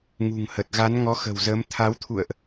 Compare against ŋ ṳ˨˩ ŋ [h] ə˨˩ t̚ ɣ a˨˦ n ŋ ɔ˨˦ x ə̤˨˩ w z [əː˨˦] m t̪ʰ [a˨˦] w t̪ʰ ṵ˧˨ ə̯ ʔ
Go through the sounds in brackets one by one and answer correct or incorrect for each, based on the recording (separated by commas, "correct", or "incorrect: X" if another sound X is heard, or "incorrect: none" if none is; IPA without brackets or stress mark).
correct, correct, correct